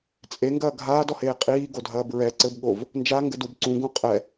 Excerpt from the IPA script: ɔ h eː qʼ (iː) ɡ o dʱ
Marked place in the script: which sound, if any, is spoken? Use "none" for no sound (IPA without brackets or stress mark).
iː